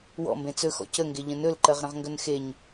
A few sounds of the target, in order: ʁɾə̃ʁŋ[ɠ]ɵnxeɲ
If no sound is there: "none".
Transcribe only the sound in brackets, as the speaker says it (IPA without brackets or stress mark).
ɡ